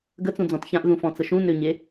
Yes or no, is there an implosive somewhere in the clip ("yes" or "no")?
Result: no